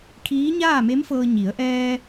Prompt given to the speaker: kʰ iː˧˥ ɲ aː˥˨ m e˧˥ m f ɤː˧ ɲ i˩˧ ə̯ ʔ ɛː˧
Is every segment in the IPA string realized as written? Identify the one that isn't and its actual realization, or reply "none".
none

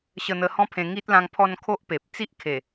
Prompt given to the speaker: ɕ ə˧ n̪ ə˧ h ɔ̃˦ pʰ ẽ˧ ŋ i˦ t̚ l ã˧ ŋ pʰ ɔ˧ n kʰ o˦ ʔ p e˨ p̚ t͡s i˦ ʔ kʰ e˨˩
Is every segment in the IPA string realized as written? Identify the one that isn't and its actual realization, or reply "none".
none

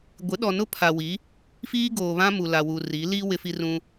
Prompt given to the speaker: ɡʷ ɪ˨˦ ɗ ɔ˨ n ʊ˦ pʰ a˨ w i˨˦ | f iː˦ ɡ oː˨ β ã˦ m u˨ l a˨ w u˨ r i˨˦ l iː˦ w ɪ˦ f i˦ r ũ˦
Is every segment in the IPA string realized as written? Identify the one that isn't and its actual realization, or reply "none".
none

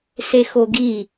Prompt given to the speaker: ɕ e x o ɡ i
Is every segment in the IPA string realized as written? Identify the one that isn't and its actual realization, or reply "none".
ɕ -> s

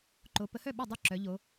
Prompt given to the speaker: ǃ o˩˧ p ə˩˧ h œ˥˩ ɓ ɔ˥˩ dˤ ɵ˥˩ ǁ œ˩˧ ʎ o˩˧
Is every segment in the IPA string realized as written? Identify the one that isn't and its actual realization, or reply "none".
ɵ˥˩ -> o˥˩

